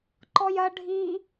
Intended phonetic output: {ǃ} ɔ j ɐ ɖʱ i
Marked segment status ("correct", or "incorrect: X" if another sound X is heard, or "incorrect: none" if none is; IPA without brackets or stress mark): correct